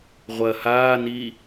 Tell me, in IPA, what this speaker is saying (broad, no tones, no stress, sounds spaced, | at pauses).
ʁʷ ɐ h aː n i